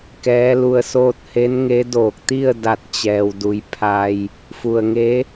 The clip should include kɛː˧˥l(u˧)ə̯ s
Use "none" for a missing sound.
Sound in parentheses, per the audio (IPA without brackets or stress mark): u˧